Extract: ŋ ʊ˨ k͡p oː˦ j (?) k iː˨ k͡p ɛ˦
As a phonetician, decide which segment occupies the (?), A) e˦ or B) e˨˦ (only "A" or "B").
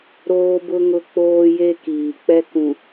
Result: A